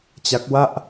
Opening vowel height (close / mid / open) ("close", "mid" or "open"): open